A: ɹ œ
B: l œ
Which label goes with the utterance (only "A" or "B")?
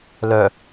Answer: B